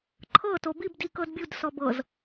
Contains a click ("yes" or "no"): yes